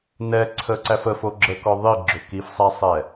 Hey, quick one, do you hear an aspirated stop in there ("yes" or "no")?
yes